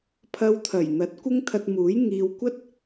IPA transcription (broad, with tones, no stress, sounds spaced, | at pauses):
pʰ ɐ˧ w t̪ʰ ɐ˨˩ j n̪ ɐ˨˥ t̚ kʷ ɪ˥ ŋ t̪ʰ ɐ˧ t̚ m uː˨˥ j ŋ iː˨ w kʷ ɐ˥ t̚